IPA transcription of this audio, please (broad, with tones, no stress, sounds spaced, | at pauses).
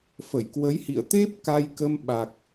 f ə˧˩ j k w ə˨˦ j h ḭ˧˨ ə̯ t̪ e˦˥ p̚ k a˧ j k ə˧ m ɓ a˨˩ k̚